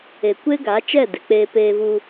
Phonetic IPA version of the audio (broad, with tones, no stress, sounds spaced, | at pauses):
e˨ kʷ e˦ ɡ a˨˦ t͡ʃ ɛ˦˨ d e˨ k͡p eː˧ p eː˧ v u˧